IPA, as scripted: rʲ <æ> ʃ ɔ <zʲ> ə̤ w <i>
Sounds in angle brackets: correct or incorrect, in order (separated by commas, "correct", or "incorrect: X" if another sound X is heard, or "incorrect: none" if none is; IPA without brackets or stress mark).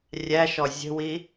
correct, correct, correct